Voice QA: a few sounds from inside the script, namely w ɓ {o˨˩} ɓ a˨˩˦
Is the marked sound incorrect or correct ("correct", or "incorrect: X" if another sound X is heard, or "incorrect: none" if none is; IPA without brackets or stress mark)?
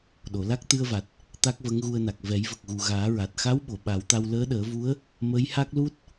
incorrect: o˨˩˨